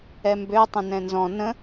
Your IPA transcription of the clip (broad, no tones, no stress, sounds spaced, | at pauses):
ɛ m b ø tˤ ə̃ n ɛ̃ n z ɔ̃ n ə̃